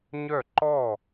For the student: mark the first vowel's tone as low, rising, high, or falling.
falling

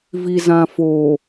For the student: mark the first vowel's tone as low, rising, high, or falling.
low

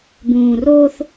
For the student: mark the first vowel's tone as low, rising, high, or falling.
low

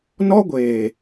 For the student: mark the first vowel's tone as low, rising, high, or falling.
high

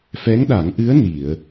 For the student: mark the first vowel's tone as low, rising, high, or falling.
rising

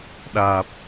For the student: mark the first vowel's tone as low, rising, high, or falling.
low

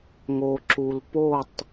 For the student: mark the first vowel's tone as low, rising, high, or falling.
low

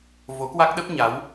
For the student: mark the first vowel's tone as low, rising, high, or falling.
rising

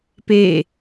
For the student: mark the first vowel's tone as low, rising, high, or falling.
falling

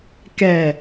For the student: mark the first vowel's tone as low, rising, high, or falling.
low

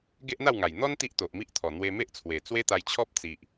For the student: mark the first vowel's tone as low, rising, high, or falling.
high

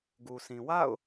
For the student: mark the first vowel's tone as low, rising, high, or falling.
low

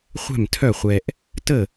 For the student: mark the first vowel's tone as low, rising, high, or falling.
falling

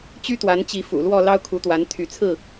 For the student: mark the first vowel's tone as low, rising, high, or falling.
high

